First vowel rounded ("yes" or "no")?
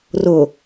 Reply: yes